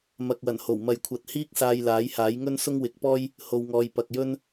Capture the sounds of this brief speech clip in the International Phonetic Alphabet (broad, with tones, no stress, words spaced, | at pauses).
mɐ˨k̚wɐ˨˩nho˨˩w mɐ˨jkʷʰɐ˨˥t̚hiː˥k̚ saː˧jlaː˨˥jhaː˨˥jŋɵ˥n sʊ˥ŋwɪ˨˥k̚pɔː˥j | ho˧wŋɔː˧j pɐ˨k̚jɵ˥n